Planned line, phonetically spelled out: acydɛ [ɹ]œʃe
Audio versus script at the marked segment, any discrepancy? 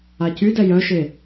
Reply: yes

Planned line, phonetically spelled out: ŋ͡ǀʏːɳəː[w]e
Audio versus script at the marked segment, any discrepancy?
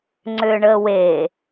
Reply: no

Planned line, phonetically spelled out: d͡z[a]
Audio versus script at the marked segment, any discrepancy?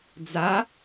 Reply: no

